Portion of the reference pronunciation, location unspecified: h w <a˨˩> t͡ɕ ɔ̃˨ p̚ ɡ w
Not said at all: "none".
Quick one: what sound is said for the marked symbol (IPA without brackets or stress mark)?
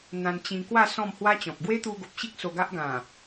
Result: a˦